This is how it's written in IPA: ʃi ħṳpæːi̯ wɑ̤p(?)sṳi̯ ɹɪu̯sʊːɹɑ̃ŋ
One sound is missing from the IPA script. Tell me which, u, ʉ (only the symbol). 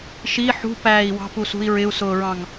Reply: u